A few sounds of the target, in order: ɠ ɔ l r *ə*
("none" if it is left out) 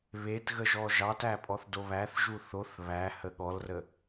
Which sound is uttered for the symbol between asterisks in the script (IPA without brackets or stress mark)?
ə